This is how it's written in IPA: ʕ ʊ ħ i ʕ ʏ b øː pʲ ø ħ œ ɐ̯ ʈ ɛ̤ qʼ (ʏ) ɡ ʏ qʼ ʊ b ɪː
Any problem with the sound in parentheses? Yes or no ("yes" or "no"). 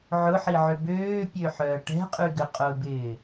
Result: yes